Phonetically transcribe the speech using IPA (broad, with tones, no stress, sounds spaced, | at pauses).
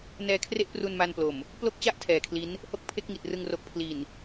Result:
n ɛː˧ kʰ r e˥˩ ʔ p r u˧ n m a˧ n p l o˨˩ m | p l o˥˩ k̚ t͡ɕ a˥˩ ʔ tʰ ɛː˨˩ kʰ l i˦˥ n | h o˥˩ k̚ pʰ e˥˩ k̚ ŋ i˨˩ t̚ r ɯ˧ ŋ r o˨˩ k̚ pʰ l i˨˩ n